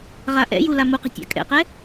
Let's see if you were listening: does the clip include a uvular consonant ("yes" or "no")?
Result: yes